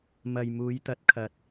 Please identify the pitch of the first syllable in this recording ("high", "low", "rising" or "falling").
low